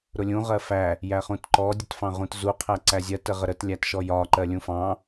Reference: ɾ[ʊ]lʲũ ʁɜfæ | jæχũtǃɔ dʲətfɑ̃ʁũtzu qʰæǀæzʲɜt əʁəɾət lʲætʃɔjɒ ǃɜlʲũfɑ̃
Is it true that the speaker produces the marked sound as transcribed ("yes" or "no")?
yes